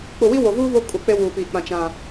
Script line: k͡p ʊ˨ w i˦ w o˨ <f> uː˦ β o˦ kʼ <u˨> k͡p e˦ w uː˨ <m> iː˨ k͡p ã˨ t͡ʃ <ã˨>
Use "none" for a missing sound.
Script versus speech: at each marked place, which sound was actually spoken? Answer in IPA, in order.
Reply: v, u˨, p, ã˨

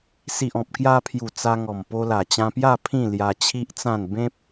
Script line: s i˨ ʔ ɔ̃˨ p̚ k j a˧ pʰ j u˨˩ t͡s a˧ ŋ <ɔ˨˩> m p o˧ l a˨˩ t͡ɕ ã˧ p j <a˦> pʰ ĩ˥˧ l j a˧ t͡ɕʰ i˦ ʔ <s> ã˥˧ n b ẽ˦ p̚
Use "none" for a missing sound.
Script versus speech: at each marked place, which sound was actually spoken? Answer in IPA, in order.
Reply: ɔ˨˩, a˥˧, t͡s

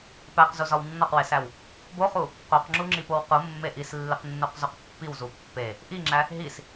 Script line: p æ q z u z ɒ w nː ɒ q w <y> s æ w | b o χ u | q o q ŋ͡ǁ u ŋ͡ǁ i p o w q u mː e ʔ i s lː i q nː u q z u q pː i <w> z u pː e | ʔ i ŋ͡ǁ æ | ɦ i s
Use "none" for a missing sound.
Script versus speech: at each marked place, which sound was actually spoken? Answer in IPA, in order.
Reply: e, w

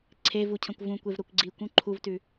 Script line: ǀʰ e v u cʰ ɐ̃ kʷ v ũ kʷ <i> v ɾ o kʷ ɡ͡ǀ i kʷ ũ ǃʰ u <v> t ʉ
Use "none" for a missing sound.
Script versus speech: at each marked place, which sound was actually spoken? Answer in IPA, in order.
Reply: e, v

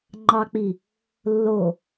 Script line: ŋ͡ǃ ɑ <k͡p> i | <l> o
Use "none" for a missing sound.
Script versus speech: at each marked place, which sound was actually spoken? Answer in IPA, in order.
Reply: k͡p, lː

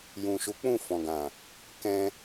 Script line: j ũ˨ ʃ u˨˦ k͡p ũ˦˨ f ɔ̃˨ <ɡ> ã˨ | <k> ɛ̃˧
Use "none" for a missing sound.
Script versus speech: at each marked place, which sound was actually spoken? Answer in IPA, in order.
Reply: ɡ, k

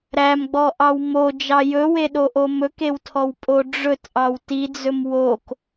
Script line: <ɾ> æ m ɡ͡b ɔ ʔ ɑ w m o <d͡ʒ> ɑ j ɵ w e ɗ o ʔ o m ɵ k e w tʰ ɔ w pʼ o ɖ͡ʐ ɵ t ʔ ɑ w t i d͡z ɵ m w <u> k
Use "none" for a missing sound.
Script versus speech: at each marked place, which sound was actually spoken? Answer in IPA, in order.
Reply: ɾ, d͡ʒ, o

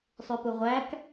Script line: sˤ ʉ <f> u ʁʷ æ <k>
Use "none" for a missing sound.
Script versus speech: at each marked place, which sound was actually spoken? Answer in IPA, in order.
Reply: p, k

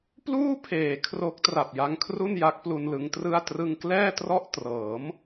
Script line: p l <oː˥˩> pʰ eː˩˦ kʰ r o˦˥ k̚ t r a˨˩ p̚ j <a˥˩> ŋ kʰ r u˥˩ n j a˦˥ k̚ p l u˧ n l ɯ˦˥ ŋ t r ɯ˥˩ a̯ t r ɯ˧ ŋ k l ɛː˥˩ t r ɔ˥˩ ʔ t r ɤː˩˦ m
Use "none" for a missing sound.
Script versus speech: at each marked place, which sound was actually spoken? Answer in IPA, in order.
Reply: uː˥˩, a˧

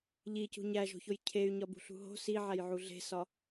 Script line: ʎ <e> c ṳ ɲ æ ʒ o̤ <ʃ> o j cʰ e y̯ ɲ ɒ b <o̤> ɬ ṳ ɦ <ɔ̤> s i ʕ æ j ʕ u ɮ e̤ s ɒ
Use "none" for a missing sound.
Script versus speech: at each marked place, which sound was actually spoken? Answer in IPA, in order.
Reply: i, ç, ṳ, o̤

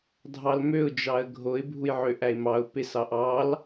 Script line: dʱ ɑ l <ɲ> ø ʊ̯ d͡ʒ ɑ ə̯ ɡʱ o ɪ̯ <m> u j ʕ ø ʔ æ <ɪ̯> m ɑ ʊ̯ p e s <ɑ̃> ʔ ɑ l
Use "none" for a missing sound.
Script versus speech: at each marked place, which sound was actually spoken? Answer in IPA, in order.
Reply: m, bʱ, ɪ̯, ɑ

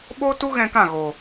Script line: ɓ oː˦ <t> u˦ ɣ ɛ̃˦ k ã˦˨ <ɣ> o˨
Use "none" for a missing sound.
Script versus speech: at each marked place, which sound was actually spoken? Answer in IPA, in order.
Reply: t, ɣ

